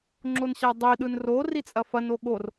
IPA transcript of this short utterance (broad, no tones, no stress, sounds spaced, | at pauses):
ŋ͡ǁ o n ɕ a dˤ i ɗ ɯ n r o r i t͡sʼ ɐ f ɐ n o ɠ o r